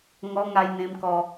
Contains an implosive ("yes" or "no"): no